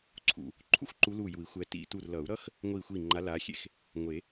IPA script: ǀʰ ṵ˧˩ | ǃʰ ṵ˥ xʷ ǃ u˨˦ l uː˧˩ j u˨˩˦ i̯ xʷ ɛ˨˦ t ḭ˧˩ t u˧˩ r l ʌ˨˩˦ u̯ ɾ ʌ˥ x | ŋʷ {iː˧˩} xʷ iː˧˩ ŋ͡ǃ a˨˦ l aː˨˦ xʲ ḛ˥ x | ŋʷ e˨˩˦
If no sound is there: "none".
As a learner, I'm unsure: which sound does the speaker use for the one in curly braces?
iː˧˩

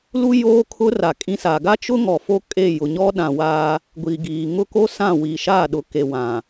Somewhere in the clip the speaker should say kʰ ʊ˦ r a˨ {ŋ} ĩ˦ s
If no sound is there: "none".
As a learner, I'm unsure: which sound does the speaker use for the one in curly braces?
kʼ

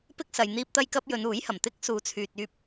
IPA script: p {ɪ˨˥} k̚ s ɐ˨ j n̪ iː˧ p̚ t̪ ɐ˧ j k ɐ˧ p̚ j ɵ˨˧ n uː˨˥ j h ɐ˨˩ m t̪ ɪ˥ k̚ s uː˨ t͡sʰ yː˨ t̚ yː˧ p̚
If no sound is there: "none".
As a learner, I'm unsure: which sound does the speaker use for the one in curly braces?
ɪ˥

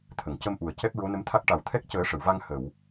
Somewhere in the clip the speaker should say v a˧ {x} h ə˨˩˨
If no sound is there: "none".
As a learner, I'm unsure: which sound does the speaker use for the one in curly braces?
ŋ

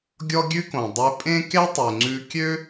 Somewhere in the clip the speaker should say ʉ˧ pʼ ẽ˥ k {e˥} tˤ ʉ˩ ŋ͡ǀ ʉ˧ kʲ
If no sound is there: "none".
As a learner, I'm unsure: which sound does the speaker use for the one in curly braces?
e˥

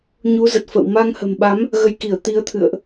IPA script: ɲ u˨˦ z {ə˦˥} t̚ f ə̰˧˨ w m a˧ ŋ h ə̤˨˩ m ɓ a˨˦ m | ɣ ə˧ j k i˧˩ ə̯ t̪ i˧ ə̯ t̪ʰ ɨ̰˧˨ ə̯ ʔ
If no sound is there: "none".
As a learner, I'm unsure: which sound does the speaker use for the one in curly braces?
ə˨˩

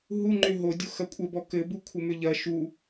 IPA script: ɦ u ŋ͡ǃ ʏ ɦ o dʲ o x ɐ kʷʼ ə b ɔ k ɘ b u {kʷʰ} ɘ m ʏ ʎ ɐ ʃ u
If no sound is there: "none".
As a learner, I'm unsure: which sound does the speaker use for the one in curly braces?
kʷʰ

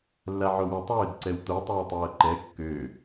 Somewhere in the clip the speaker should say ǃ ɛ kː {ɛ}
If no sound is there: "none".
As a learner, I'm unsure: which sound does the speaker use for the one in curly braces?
ø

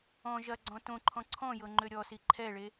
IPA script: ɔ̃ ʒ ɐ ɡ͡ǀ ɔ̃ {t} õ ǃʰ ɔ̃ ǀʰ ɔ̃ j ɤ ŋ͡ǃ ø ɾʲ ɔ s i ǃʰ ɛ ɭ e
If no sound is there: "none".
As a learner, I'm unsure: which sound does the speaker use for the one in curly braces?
t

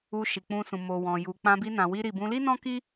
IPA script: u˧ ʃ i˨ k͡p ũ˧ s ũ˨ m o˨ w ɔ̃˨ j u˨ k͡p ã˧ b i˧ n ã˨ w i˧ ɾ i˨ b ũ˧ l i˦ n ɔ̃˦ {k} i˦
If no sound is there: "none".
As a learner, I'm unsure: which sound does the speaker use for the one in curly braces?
k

